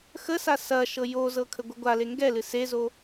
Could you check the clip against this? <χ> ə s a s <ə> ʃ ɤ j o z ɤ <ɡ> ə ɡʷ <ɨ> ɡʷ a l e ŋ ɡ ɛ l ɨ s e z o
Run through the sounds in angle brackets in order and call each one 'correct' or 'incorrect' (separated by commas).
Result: incorrect, incorrect, incorrect, correct